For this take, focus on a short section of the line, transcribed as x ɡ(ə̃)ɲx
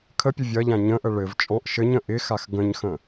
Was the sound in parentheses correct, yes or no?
yes